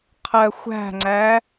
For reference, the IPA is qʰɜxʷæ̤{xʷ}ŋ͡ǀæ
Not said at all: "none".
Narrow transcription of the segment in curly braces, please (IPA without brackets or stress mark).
none